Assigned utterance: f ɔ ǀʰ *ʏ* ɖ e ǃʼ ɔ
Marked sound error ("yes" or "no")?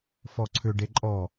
no